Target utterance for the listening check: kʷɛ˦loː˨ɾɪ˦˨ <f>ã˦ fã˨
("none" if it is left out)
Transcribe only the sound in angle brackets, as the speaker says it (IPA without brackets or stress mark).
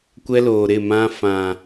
m